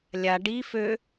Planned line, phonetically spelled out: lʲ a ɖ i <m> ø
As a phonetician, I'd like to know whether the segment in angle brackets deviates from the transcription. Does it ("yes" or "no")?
yes